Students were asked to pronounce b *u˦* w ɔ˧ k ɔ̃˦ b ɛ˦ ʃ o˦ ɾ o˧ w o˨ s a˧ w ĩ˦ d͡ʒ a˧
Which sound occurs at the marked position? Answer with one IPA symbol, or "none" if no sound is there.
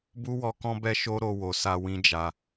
u˦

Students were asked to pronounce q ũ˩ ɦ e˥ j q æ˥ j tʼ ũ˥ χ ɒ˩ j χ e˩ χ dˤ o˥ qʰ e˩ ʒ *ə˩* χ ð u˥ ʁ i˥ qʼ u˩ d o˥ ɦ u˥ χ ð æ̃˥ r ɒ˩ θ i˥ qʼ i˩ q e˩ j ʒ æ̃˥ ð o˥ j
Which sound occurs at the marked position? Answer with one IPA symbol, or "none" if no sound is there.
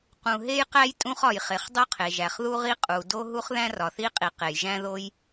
æ˩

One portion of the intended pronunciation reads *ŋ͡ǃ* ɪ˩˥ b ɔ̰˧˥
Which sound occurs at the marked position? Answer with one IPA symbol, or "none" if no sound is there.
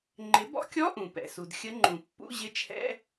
ŋ͡ǃ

